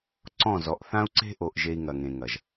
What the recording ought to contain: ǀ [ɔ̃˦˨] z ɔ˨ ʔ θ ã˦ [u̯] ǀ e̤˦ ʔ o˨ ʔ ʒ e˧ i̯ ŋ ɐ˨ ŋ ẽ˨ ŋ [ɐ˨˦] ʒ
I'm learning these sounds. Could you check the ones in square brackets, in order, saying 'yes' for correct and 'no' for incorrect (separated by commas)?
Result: yes, yes, no